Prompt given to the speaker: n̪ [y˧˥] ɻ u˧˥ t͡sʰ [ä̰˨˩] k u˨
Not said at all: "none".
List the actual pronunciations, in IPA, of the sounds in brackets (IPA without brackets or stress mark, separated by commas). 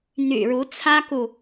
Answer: y̰˨˩, ä˥